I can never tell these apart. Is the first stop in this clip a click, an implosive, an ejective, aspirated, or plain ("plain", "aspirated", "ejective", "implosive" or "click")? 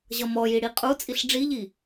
ejective